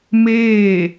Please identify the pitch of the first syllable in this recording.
falling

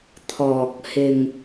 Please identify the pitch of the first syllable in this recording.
low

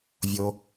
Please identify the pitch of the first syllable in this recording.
low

